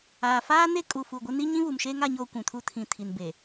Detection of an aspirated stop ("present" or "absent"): present